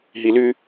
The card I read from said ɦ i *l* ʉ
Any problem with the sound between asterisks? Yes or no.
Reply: no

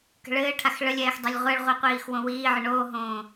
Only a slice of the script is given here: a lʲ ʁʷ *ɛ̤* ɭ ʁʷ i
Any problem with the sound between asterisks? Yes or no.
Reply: yes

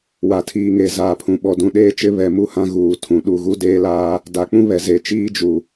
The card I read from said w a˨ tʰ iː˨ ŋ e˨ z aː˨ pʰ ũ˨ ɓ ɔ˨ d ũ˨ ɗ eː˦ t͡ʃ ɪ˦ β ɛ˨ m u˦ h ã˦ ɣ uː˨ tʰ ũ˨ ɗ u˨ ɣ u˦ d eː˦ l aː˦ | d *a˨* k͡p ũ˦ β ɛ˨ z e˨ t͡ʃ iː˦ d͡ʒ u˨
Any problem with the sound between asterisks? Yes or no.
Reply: yes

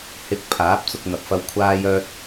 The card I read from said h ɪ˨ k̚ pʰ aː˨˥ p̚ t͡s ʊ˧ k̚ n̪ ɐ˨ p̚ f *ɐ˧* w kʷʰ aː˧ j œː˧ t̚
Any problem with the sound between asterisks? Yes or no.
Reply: no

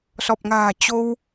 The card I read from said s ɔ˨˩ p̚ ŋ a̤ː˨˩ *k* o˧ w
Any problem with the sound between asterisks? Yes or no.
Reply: yes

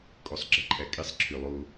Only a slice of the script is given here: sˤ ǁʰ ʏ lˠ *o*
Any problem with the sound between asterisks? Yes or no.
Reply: no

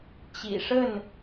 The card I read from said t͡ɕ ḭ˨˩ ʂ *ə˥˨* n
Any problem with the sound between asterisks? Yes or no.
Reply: no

